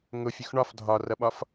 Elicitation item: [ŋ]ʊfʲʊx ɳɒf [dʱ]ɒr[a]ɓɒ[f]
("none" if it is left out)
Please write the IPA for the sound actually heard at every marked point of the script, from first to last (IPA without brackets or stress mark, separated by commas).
ŋ, dʱ, ʌ, f